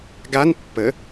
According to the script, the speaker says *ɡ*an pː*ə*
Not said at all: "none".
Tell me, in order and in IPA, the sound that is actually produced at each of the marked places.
ɡ, ə

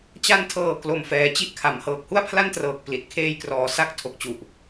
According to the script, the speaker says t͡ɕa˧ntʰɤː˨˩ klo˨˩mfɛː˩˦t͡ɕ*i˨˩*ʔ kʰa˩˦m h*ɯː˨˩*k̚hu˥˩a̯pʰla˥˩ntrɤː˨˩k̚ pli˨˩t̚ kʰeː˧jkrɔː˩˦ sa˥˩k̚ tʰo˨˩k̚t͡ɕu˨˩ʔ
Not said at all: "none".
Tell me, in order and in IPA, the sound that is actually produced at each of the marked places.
i˥˩, ɤː˨˩

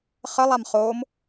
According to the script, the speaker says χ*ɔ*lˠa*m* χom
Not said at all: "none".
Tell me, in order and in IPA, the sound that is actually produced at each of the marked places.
ə, m

